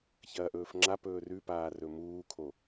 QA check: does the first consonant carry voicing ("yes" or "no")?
no